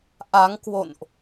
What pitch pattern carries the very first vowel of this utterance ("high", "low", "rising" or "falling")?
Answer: rising